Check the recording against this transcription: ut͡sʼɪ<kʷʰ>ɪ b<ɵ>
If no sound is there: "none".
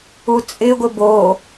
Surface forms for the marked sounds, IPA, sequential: ɡʷ, o

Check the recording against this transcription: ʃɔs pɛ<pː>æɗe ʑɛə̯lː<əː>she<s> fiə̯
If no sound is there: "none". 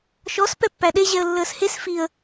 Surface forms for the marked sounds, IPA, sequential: pː, əː, s

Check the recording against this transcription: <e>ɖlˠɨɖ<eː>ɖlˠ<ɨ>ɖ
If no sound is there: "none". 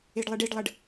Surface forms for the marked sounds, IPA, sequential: e, e, ə

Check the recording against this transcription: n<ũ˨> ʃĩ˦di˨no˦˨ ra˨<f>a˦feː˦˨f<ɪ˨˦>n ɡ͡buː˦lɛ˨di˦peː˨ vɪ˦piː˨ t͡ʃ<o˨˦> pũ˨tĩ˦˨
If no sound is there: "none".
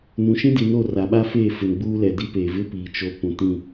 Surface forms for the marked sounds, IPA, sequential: ũ˨, ɓ, ɪ˨, o˨

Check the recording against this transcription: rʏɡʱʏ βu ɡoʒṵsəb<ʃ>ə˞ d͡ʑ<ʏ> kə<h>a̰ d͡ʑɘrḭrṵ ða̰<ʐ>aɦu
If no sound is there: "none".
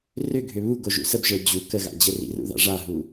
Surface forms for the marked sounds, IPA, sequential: ʒ, u, ɣ, ʐ

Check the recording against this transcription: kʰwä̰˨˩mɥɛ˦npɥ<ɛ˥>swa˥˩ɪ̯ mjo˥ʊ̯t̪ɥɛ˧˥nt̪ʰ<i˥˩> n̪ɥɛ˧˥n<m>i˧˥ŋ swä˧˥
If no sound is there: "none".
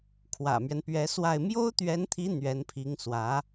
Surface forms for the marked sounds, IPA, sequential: ɛ˧˥, i˧˥, pʰ

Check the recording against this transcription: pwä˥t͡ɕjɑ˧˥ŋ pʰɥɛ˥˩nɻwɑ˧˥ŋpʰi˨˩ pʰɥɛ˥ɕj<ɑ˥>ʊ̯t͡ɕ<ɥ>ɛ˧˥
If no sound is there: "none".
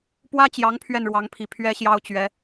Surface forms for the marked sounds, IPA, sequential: ɑ˥, ɥ

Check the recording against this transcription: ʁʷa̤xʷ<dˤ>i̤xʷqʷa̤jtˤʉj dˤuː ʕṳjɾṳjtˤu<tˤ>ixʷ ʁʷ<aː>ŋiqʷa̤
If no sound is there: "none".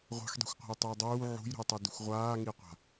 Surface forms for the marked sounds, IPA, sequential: dˤ, d, aː

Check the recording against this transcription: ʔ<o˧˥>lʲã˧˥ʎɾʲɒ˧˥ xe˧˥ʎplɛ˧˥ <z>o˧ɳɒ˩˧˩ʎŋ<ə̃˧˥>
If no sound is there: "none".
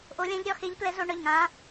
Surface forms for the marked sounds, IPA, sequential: o˧˥, z, ã˧˥

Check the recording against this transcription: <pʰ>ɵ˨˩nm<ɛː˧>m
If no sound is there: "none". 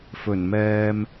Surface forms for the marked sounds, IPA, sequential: f, ɛː˧

